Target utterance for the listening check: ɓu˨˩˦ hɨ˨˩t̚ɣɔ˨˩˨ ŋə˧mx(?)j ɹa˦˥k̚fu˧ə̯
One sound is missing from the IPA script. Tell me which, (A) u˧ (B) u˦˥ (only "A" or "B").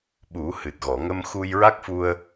A